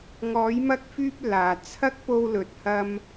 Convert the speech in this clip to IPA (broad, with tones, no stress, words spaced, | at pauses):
ŋɔː˨˧jmɐ˧k̚fyː˧p̚ laː˨t͡sʰɐ˥k̚ po˧wlɵ˨t̚hɐ˧m